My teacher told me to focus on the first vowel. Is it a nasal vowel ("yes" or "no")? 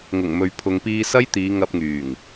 no